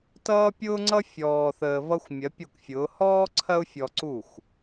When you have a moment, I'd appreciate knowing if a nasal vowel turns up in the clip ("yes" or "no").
no